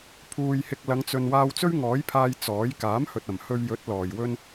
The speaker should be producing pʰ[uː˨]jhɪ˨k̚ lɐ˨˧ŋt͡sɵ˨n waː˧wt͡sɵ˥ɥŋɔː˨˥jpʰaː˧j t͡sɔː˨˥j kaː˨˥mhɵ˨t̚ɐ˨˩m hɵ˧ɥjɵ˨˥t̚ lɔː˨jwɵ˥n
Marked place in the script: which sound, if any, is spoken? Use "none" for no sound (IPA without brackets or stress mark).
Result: uː˨